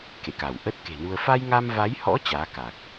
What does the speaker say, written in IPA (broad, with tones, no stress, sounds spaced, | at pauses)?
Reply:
k ḛ˧˨ k a˧˩ w ʔ ə˦˥ t̚ k e̤˨˩ n u˧ ə̯ f a˧ j ŋ a˧ m v a˨˦ j h ɔ̰˧˥ t͡ɕ aː˨˦ k a˨˩ k̚